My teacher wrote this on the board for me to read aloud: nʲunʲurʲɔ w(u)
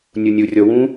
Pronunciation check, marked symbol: incorrect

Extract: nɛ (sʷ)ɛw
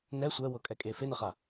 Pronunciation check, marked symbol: correct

